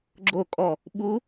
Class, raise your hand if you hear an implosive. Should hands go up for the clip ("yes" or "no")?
yes